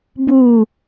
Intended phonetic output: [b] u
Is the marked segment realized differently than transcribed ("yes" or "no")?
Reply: no